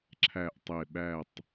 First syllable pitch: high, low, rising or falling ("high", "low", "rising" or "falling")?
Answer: falling